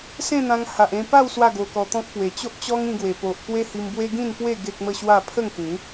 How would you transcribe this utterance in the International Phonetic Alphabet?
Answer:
s ẽ˥˧ n̪ ã˧ ŋ h a˨ ʔ ẽ˧ p a˥˧ w s w a˥˧ ɡ o˧ k ɔ˧ t̪ ɔ̃˦ k̚ p w e˨˩ t͡ɕ o˦ ʔ t͡ɕ ɔ˦ ŋ ĩ˧ ɡ w e˨˩ p o˨ ʔ k w e˦ h i˧ m b w e˦ ɡ ĩ˥˧ n p w e˥˧ ɡ e˦ k̚ m ə˥˧ ɕ w a˥˧ pʰ ə˥˧ ŋ k ĩ˨˦

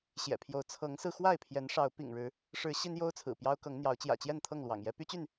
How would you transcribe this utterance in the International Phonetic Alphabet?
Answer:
ɕ j ɛ̰˨˩ pʰ j o˨˦ ʊ̯ t͡sʰ ɤ˨˦ ŋ s ɹ̩˧ x w a˥˨ ɪ̯ pʰ j ɛ˨˦ n ʂ ɑ˨˦ ʊ̯ p ḭ˨˩ ŋ ɻ ɻ̩˨˦ | ʂ ɻ̩˨˦ ɕ i˦ n j o˦ ʊ̯ t͡sʰ ɹ̩˨˩ p j ɑ˦ ʊ̯ k ɤ˨˦ ŋ n̪ j ɑ˨˦ ʊ̯ t͡ɕ j ä̰˨˩ t͡ɕ j ɛ˥˨ n t̪ʰ ɤ˥˨ ŋ l w ɑ̰˨˩ ŋ j ɛ˦ p y˦ t͡ɕ y˥˨ n

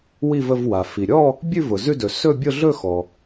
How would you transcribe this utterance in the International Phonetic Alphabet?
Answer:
w i˥˧ v ə˥˧ v w a˩ f i˩ ɾʲ ɔ˥˧ | bʲ ʉ˥˧ v ʊ˩ z ʉ˥˧ d ɵ˩ s ɵ˥˧ bʲ ʊ˥˧ ɮ ɵ˥˧ x ɔ˩

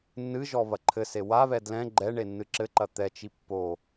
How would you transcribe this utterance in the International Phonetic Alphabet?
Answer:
nː ɨ ʒ ɔ β ɐ ǃʰ ɘ s e w a β ɛ d l ɛ̃ ɡ͡ǃ ɛ ɳ e nː ɨ ǁ ɘ ǃ ɐ t̪ ɛ t͡ʃ i pː o

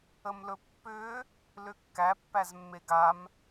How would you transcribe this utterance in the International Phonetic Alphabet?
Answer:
ə m l ɵ pː ʏ | l ʏ kː æ pː æ z mː e ɡ a m

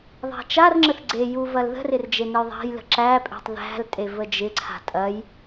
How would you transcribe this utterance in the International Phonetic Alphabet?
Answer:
ðˤ æ̤ t͡ʃ a r ŋ͡ǁ ə θ ɡ͡ǀ e j u v ɐ l ð ə̤ r ɪ r d͡ʒ e n ə j ðˤ æ̤ j l ə̤ ǁ æ pʼ e̤ tˤ ð æ̤ l tʼ e v ə d͡ʒ ɪ ǀʰ a̤ tʼ ɐ j

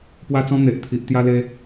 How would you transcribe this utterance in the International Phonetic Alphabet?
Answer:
p w a˦ t͡s ɔ̃˦ n̪ e˨ ʔ t̪ʰ i˨ ʔ t̪ j a˧ l e˧

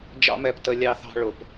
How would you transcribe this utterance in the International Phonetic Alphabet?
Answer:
d͡ʒ ɑ̰˦ m ɛ˧ p t ə˧ lʲ ɑ˧ θ ɑ̤˧ ɭ ʊ˨ p

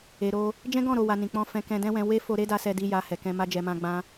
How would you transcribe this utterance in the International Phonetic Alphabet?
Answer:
e˨ ɾ o˧ | d͡ʒ ɛ̃˦ ɡ ɔ̃˦˨ ɾ o˨ w a˨ n ĩ˨ k͡p ɔ̃˧ f ɛ̃˧ k ɛ̃˧ d ɛ̃˦ w ɛ̃˧ w e˦ f o˧ ɾ e˦ d a˧ s ɛ˧ d i˧ j a˧ h ɛ˨ k ɛ̃˧ m a˦ d͡ʒ ɛ˧ m ã˦ ɡ͡b ã˦

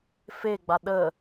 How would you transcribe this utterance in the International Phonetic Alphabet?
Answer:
f e ɡ͡b a ɗ ə

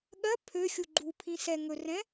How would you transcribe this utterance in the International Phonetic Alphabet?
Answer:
ɠ ɜ pʰ ø xʲ u ɡ͡ǃ u pʰ ĩ s ɛ ŋ ɵ r ɛ̃

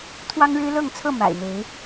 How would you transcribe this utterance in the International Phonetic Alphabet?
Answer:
t̪ʰ w ɑ˦ ŋ ɻ ɻ̩˦ l ɤ˥˨ ŋ t͡sʰ ɤ˥˨ m a̰˨˩ ɪ̯ n̪ e˨˦ ɪ̯

